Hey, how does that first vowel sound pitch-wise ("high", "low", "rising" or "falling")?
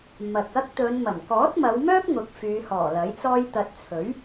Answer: low